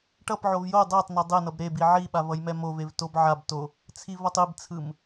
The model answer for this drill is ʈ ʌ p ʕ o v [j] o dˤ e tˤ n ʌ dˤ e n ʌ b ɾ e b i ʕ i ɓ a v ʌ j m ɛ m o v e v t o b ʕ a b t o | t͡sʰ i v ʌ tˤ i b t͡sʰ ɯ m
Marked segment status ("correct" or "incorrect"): correct